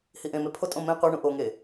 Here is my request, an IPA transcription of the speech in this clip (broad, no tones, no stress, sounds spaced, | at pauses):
h i ʔ ẽ m e pʰ o tʼ õ m ẽ qʷ e ɳ ũ ʔ o ŋ e